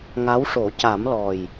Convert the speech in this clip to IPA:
ŋ a˧˥ w ʂ o˨˩˦ c a˨˩˦ m l ɔ˨˩ j

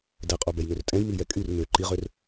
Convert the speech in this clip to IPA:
d ɛ qʼ o b ɛ j n ø r tʼ ɛ̃ j m i j ɛ kʼ y r m ø ǃ i ʁ ø r

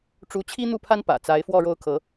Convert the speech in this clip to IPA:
ʈ͡ʂ u˧˥ t͡ɕʰ i˥ n̪ u˥˩ pʰ a˥ n p ä̰˨˩ t͡s a˧˥ ɪ̯ f w ɔ˥˧ ɻ o˥˩ ʊ̯ kʰ ɤ˧˥

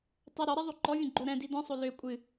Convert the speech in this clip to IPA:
tˤ ɛ ɾ ɔ ɾ ɛ ðˤ o ǃ ɔ vʲ ə̃ ɡ͡ǃ o ɾ ɛ̃ d i d ɔ̃ sˤ o l ø kʷʼ ɨ

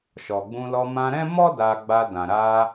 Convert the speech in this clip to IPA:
ʃ ɔ˨ ɡ͡b ũ˧ l ɔ˧ m ã˧ ɾ ɛ̃˦ m ɔ˦ d a˧ ɡ͡b a˧ d ã˨ ɾ a˧

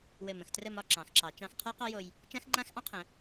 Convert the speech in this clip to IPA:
w ɘ˧˩ m ə̃˧ x t r ə˥˧ m ɒ˥˧ ǁ ɑ̃˩˧ x ǁ ɑ˩˧ t͡ʃ ɑ̃˧ x qʰ a˥ q ɑ˥ j o˧ j | t͡ʃ ã˥ x ŋ͡ǃ ã˥ x ʔ ɑ̃˥ qʰ ə̃˩˧

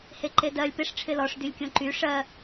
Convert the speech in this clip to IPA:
h e ǃ e d ɜ lʲ p ɪ ʂ ʈ͡ʂʰ ɪ l ɔ ʂ d y lʲ kʲ õ ǃ y ʂ ɜ

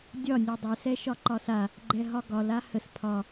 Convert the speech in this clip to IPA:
dʲ ɒ nʲ ɛ dˤ ɛ s ɛ ʃ ɒ ǃ ɒ s a | ɡ͡ǃ ɛ ɦ ɒ ɡ ɒ l a h ə s pʰ ɒ

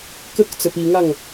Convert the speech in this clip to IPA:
k ə k t͡s ə p i ŋ a ŋ

